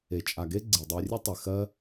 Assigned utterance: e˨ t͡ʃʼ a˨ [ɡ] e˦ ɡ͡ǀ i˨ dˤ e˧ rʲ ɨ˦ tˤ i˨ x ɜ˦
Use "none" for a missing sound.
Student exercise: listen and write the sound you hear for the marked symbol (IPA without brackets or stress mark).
ɡ